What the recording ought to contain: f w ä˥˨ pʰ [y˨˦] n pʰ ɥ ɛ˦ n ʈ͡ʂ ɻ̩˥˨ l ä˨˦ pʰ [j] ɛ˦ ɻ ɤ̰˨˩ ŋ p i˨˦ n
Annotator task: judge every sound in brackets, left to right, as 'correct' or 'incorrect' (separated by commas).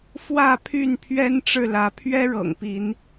incorrect, incorrect